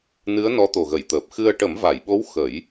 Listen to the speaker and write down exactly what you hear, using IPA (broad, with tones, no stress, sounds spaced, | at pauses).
n ɨ˧˥ ə̯ n ɔ˧˥ t̪ o˨˩ ɣ ə˨˩˨ j t̪ əː˨˩ p̚ x ɨ˧ ə̯ ʈ ə˨˩˦ m v a˨˩˨ j ɓ o˧˥ w x ə˨˩˦ j